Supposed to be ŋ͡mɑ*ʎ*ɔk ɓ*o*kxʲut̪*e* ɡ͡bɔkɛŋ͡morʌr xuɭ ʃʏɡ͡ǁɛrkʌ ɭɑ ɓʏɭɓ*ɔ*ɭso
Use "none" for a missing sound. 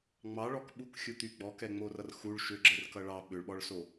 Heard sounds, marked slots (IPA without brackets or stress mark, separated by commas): ɭ, u, y, ɔ